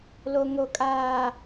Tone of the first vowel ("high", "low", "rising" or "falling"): low